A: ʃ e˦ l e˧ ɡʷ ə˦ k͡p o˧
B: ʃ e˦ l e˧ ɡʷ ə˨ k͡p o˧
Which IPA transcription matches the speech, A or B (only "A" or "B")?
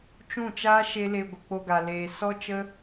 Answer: B